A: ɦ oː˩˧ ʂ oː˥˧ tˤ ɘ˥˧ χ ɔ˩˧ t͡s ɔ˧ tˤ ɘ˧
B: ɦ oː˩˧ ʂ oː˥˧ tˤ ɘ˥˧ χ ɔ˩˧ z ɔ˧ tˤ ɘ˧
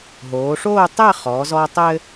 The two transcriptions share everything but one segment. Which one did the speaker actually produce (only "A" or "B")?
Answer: B